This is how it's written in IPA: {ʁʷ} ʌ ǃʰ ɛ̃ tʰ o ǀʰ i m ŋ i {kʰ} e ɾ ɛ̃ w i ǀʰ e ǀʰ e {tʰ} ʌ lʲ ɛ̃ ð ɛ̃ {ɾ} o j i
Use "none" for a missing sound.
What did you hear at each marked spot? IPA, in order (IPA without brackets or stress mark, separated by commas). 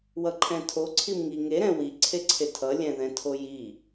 w, ŋ, tʰ, tʰ